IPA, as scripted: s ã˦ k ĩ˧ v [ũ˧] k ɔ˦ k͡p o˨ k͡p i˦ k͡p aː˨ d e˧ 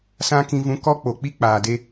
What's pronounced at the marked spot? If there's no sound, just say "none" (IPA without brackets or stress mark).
ũ˧